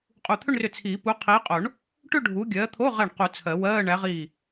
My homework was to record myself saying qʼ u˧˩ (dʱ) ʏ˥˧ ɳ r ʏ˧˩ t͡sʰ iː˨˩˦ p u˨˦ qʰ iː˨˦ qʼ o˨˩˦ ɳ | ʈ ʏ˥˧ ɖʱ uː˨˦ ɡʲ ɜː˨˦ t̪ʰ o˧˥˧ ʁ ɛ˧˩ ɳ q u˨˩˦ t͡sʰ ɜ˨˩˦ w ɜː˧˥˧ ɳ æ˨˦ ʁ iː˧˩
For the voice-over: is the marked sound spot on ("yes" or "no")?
no